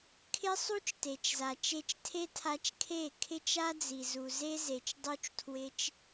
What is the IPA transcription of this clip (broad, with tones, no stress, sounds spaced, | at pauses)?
kʰ ɪ˦ sˤ u˦ t͡ʃ t e˨ t͡ʃ z a˨ t͡ʃ e˧ t͡ʃ tʰ e˦ tʰ a˧ t͡ʃ kʰ e˦˨ kʰ ɪ˦ t͡ʃ a˦ d͡z i˨ z u˨ z e˦ z e˨ t͡ʃ dˤ u˦ t͡ʃ tʰ w ɪ˦ t͡ʃ